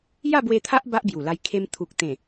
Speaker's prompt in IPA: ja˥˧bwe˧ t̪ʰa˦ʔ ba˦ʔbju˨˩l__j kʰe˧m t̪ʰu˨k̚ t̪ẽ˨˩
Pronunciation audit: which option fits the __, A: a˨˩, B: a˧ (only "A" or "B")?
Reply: B